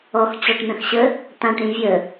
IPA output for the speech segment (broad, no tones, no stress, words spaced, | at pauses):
ɔx t͡ɕɔʈn̪ə̃xɕə | t̪ãʈ ɾĩvʲə